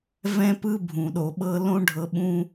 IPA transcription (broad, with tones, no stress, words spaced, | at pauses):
vɛ̃˧pɯ˧ bʱũ˨ɗo˨ɓɤ˧ lõ˦ɖʱɤ˧ɓũ˦